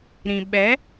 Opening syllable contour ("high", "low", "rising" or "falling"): low